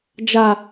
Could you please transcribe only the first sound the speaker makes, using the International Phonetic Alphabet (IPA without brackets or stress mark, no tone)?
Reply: d͡ʒ